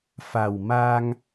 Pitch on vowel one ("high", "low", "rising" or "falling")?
low